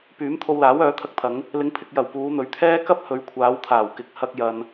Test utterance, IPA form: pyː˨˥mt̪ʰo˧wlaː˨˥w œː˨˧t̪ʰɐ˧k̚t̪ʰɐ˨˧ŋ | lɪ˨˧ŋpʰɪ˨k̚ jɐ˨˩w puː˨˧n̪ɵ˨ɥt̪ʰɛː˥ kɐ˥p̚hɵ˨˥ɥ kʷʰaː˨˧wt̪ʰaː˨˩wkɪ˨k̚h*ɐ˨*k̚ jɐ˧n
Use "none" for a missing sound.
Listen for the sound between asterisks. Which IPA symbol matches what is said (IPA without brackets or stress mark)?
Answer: ɐ˧